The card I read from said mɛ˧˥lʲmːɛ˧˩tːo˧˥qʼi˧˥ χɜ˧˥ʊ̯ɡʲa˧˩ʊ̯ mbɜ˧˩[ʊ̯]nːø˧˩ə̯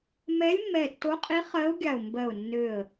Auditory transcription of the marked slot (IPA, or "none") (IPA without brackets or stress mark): ʊ̯